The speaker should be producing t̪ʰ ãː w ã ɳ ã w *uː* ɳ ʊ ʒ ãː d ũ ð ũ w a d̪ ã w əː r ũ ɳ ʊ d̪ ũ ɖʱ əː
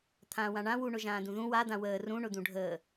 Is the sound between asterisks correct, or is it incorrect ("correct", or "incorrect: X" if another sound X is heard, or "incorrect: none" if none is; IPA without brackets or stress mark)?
incorrect: u